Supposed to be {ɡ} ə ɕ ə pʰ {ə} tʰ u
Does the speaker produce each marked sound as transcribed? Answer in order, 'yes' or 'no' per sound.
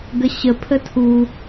yes, yes

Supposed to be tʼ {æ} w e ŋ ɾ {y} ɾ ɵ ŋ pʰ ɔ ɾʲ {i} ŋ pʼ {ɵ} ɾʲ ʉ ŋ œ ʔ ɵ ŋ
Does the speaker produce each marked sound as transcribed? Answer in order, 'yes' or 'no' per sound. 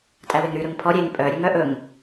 yes, yes, no, no

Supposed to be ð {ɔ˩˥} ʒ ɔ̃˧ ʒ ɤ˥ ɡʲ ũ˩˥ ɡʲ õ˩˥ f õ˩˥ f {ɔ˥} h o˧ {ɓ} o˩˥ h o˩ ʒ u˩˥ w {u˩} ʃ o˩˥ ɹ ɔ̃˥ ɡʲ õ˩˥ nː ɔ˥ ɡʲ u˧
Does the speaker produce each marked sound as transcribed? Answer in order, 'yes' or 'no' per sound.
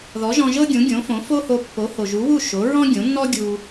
yes, no, no, no

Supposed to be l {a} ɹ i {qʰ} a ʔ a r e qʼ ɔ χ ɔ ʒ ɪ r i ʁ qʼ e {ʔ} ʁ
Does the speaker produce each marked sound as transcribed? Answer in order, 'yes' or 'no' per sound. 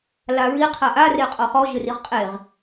yes, yes, no

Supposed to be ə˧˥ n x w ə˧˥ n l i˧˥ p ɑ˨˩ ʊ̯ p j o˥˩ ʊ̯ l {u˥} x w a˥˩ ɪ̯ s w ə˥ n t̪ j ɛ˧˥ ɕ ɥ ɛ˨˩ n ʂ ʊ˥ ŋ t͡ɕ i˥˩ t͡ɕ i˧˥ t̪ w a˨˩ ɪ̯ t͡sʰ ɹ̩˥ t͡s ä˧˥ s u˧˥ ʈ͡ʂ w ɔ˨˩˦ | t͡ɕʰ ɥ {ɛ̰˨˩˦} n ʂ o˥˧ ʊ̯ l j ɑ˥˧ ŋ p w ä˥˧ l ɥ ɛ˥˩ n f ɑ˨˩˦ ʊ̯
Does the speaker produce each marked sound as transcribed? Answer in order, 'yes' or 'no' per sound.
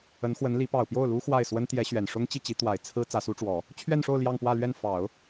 yes, no

